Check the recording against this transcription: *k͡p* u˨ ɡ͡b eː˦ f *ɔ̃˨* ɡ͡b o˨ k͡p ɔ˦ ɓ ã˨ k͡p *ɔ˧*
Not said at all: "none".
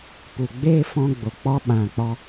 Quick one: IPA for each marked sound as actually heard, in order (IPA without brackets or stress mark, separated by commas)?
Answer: p, ɔ̃˧, ɔ˧